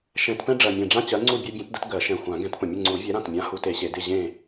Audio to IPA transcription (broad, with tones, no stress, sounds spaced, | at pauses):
ʃ ɛ̃˨˩˦ t p ɛ̃˦ ɖ͡ʐ ɜ˨˩ mʲ ɛ̃˨˩ ɖ͡ʐ ã˦ t͡ɕ ɜ˨˥ ŋ͡ǀ u˥˨ bʲ e˦ bʲ ɛ̃˨˥ t d ə˦ t ɡ ɜ˨˩˦ ʃ ɛ̃˨˩ xʷ ã˨˩˦ ɡ ɛ̃˨˥ t p ə̃˨˩ mʲ ə˥˨ ŋ͡ǀ u˨˩˦ vʲ ɛ˨˥ ɾ ã˨˩ t mʲ ã˨˥ h u˨˥ t e˨˩˦ ɕ e˨˩˦ d ɪ˥˨ ʑ ẽ˥˨